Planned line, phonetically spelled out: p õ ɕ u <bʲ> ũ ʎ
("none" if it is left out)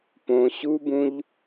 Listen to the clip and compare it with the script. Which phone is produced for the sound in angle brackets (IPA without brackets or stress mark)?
b